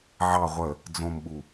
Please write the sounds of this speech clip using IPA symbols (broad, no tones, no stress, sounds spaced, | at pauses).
ʕ ɑ ʁʷ ə | d͡z õ m ɓ u